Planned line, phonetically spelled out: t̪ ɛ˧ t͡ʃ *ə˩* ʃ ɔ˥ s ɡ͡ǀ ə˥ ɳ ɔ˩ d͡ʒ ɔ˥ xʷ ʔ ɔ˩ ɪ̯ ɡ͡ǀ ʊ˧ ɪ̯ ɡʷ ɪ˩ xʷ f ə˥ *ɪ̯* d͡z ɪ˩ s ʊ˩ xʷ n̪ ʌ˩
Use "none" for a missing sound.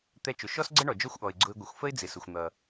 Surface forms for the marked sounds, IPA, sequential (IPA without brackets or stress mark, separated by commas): ʊ˩, ɪ̯